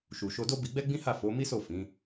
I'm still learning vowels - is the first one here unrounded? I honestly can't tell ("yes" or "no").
no